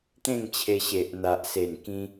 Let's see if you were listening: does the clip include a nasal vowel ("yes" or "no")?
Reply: yes